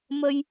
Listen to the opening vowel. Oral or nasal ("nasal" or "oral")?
oral